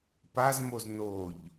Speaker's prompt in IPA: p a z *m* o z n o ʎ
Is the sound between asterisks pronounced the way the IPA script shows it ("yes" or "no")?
yes